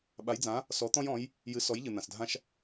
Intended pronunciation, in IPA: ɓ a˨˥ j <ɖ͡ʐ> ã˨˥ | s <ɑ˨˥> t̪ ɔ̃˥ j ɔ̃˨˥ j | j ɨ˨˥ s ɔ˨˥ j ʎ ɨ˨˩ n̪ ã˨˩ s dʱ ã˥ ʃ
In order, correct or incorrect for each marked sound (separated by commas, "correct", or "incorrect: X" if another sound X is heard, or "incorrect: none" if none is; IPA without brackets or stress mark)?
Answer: incorrect: d͡z, incorrect: ɔ˨˥